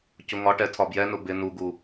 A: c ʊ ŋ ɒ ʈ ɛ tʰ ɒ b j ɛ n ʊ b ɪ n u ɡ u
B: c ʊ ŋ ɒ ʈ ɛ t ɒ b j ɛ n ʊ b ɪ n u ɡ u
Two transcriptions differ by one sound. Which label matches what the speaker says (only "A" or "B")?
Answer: A